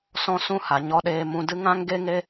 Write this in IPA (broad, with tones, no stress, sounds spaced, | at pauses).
s ɔ̃˦ s ũ˦ h a˨ ɲ ɔ˧ ɗ eː˧ m ũ˧ d ɨ˦ ŋ ã˦ ŋ ɡ e˦ ŋ e˦